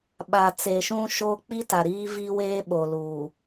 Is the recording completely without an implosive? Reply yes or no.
no